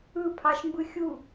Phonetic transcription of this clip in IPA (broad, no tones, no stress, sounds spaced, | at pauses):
ɯ pʰ ɑ ʃ m b ɯ xʲ u